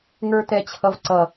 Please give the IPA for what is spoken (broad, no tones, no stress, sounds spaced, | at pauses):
ŋ ə˞ t ɛ t͡ɕʰ ʌ v ǀ ʌ